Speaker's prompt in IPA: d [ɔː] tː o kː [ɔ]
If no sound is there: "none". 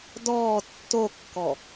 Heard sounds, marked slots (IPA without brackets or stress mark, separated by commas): ɔː, ɔ